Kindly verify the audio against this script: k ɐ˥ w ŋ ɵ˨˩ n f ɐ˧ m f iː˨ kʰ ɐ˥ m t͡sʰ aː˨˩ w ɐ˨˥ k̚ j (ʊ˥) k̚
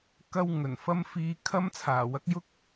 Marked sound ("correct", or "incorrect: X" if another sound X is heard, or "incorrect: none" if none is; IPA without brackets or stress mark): correct